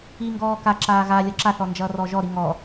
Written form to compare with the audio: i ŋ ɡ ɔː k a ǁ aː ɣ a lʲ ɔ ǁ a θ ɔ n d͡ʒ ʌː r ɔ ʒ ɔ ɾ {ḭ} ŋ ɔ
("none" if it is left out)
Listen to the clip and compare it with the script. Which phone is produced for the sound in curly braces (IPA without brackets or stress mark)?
i